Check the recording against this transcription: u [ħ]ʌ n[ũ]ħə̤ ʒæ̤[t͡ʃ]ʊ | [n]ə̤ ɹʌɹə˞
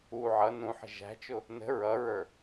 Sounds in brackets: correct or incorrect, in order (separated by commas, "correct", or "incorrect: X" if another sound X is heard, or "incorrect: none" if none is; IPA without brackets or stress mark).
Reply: incorrect: ʕ, correct, correct, correct